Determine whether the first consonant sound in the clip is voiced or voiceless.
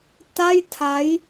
voiceless